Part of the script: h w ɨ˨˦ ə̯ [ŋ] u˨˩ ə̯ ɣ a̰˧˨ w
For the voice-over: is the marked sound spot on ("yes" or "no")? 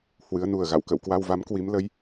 no